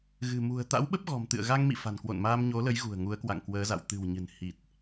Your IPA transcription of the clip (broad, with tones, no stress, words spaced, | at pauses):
ɣɨ̤˨˩mṳ˨˩ə̯ t̪a̰˧˥wɓə˦˥p̚ɣɔ̤˨˩m t̪ɨ̰˧˨ə̯ɣa˧ŋmḭ˧˨ fa̤˨˩nkwo̰˧˨nmaː˧m ɲo˨˦lə˨˦jɣṳ˨˩ə̯ ŋu˨˦ə̯kwa̰˧˨ŋkwəː˨˦za̰˧˨w t̪ɨ̤˨˩wɲɨ̤˨˩n hi˨˩t̚